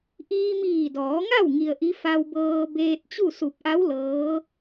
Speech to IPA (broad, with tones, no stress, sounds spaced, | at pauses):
ʔ iː˧ m iː˧˩ d ɔː˩˧ ŋ a˥˨ w ŋ i˧ ə̯ ʔ i˧˥ f a˧ w b ɤː˧ b eː˧ t̚ t͡ɕ u˥˨ s u˧˩ p̚ ʔ a˧˥ w l ɤː˧˥